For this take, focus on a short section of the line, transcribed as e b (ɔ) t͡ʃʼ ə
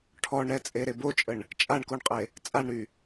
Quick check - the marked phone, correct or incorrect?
incorrect